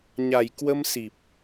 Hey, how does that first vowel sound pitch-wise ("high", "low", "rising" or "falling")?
low